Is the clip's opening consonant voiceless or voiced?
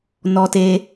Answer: voiced